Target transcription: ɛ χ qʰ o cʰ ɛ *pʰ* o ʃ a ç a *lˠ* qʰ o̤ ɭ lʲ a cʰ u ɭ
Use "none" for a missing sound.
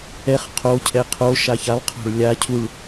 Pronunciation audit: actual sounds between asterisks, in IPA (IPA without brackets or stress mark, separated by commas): qʰ, lˠ